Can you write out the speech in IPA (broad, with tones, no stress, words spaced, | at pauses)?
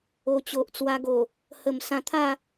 o˨˩t͡ɕo˨ʔt͡swa˧ɡo˨˩ | hə˨˩m sã˧t̪ʰa˥˧